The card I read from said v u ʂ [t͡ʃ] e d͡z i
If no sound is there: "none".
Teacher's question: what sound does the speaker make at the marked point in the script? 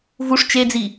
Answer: t͡ʃ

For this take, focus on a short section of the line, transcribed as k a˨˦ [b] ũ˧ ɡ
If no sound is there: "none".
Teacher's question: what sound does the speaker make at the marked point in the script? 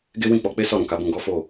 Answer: b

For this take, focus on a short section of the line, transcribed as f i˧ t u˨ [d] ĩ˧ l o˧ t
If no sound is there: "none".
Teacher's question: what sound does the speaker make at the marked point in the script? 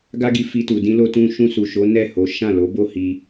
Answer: d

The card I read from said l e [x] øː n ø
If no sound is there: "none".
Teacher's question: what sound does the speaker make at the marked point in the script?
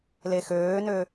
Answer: x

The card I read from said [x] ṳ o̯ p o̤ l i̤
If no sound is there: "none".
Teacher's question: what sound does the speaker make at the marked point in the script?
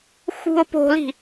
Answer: x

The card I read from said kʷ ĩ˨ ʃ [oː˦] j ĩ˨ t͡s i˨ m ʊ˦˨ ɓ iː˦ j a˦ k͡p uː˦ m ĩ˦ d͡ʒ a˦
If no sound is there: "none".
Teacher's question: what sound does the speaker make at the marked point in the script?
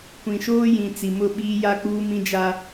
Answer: oː˦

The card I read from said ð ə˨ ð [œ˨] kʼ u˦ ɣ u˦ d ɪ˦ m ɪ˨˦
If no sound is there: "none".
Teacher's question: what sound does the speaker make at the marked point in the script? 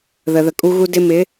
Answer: ə˨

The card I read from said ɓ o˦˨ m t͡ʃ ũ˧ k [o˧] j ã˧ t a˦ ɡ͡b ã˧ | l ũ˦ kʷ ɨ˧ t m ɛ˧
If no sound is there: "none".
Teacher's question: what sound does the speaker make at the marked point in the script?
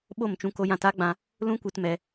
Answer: o˧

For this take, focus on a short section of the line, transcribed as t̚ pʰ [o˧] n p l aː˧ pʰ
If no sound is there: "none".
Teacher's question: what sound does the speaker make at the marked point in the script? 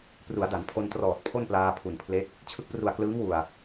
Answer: o˥˩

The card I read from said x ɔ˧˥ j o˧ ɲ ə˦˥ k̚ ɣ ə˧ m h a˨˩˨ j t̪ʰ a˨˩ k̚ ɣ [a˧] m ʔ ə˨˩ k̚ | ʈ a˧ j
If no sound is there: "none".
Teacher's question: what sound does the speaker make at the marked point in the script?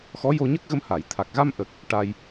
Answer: a˧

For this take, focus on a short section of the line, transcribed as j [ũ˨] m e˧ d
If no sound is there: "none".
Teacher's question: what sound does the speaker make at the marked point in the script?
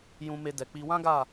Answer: ũ˧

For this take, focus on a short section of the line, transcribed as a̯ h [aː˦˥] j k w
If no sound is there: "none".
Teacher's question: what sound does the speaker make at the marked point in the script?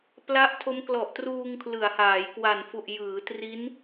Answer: aː˩˦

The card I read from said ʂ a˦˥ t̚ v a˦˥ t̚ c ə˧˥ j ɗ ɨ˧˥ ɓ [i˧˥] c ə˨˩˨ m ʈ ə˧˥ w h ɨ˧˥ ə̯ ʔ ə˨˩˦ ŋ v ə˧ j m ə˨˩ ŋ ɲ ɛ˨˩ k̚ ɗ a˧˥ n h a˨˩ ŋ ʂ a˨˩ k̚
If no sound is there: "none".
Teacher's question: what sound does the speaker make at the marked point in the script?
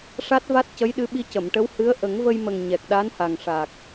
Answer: i˧˥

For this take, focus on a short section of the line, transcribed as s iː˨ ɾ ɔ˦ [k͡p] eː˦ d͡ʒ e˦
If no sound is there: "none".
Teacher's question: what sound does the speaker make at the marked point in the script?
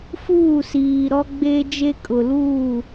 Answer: ɡ͡b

